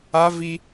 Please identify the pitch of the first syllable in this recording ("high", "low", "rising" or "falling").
high